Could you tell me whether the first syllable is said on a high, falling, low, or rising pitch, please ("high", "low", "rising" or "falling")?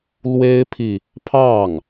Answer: high